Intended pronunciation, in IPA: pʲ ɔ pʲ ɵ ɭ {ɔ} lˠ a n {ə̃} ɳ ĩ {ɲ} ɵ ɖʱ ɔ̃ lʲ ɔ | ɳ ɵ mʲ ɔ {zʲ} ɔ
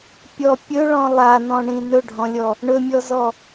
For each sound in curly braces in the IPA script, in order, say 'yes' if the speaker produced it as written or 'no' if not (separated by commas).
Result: no, no, no, no